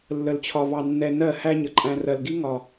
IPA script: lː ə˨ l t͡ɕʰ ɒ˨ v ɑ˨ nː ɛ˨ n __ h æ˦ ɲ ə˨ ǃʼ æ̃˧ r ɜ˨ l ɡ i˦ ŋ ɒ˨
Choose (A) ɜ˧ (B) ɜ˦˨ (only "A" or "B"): B